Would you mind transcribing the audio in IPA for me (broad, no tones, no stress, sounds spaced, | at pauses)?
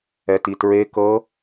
ɛ t i t ɹ e k ɤ